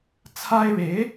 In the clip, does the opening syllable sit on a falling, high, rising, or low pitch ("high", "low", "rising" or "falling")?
high